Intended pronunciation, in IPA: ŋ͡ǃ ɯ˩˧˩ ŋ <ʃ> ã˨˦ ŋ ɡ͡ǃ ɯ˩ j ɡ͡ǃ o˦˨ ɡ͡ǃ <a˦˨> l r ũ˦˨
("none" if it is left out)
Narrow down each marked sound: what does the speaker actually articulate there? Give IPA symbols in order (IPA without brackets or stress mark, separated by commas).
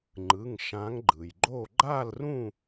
ʃ, a˦˨